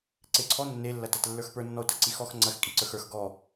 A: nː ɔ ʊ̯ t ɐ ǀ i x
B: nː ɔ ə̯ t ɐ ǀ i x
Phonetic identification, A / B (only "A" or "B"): A